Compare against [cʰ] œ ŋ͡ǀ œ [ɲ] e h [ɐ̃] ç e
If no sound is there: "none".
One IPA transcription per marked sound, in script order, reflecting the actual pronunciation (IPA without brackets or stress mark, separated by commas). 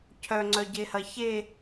cʰ, ɟ, ɐ